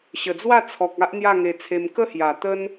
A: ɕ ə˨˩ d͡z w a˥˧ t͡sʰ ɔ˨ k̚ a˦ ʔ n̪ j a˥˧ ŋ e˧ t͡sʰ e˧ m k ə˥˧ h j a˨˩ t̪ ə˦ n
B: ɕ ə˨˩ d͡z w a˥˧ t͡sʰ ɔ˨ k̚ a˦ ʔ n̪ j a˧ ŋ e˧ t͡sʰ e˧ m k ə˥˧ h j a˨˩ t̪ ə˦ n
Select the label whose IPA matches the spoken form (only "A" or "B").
A